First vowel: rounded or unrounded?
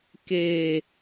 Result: unrounded